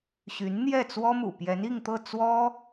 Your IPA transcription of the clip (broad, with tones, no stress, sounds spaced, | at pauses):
ɕ y˧˥ n n̪ j ɛ˥˩ t͡s w ɔ˥ m ṵ˨˩ p j ɛ˧˥ n i˥˧ ŋ t̪ ɤ˥˩ t͡s w ɔ˥